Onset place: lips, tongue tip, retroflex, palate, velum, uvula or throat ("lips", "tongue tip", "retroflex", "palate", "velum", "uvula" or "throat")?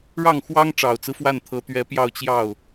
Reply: retroflex